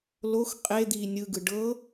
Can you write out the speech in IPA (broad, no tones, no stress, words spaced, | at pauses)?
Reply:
lox qʼe d̪iːnʲɯɡɯ ɖɤ